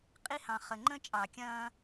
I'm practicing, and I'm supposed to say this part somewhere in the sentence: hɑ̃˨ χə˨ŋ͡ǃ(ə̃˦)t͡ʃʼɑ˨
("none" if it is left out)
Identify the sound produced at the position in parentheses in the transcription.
ə̃˦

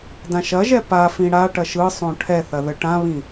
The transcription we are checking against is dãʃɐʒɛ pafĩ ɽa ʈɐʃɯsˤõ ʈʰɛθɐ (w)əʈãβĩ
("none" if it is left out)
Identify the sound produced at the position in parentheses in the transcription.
ð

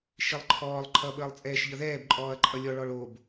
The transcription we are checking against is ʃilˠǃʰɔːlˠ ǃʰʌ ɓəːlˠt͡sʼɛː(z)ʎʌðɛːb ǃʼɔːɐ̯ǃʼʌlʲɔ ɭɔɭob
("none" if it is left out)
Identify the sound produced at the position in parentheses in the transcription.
ʃ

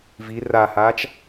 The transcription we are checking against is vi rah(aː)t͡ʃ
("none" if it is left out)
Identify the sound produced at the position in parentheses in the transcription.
aː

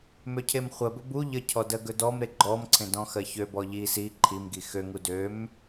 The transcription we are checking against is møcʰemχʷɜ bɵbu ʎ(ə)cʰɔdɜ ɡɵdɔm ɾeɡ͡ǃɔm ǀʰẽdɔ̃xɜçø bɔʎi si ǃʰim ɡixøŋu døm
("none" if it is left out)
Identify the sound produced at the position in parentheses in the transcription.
ə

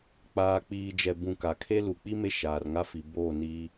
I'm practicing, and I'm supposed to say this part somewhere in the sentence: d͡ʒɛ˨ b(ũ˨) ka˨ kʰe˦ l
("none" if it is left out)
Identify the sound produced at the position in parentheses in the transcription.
ũ˨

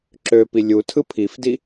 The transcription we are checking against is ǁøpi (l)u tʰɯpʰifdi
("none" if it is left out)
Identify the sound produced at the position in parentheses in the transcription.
lʲ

